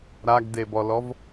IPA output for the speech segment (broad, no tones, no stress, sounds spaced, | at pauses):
ɾ a ɡ d e b ɔ l ɔ v